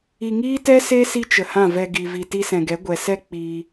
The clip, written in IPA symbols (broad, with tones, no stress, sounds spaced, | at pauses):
i˨ ŋ iː˦ t ɛ˦ s e˦ s i˦ t͡ʃ ə˨ h ã˦˨ v ɛ˧ ɡ i˨ v i˨ t i˧ s ɛ̃˨ ɡ ɛ˨˦ ɡʷ ɛ˨ s ɛ˦ k͡p iː˧